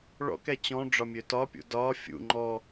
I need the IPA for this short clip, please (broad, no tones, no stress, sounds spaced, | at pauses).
ɭ ɔ̰ k ɛ t͡ɕ ɔ̃ ɖ͡ʐ ɒ mʲ ø t ɒ pʲ ṵ d ɒ fʲ ṵ ŋ͡ǃ ɔ